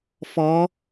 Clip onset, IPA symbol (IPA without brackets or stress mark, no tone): f